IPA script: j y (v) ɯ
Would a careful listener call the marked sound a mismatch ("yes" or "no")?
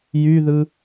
yes